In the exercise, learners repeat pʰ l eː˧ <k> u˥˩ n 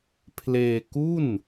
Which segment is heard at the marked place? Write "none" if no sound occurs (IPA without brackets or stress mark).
k